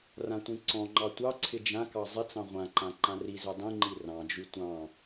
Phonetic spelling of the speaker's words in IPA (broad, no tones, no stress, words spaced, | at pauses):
rãtʷĩǀɔ̃ŋ͡ǃɑ tʷɑ ǀʰɪd͡ʒãkɑ zˤɪt͡sɑ̃ ʁʷãǃã ǃãrizø dˤĩŋ͡ǃi rɑ̃d͡ʒy tʷɑ̃